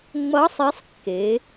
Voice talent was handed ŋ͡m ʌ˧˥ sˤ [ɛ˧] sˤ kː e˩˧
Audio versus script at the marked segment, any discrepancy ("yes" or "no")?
yes